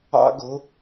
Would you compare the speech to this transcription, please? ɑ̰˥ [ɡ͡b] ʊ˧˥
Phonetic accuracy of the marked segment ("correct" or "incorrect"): incorrect